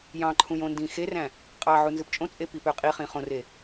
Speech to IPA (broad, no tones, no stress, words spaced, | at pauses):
jɑ̃ǃʰũj õndĩxeræ̃ | qʼɑʕu nzɯpt͡ʃʼõt͡sʼe pipøqʼiχĩ χõre